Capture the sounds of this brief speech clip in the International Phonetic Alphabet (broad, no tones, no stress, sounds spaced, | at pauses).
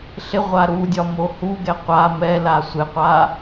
ɬ ɪ ʁʷ a ɾ u dʲ ɒ m o h u ɡ ɛ qʷ a m ɛ l a sʷ ɪ qʷ a